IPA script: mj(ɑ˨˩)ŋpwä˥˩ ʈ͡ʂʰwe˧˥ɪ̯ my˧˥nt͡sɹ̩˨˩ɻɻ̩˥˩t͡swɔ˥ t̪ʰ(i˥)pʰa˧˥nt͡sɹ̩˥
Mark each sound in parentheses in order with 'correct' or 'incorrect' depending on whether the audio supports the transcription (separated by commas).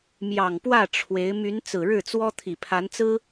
correct, incorrect